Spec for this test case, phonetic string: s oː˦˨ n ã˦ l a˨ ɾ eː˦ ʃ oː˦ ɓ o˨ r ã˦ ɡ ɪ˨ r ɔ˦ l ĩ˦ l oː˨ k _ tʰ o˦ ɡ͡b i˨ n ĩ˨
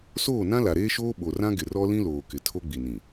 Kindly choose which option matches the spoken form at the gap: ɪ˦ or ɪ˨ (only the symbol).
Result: ɪ˨